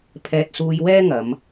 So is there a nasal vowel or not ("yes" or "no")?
no